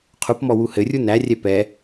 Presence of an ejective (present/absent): absent